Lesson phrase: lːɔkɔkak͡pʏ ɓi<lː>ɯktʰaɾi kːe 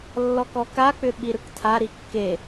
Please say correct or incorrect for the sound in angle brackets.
incorrect